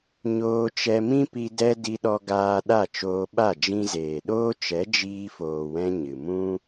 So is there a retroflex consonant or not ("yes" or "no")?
no